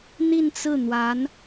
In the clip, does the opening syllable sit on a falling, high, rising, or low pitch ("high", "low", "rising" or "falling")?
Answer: falling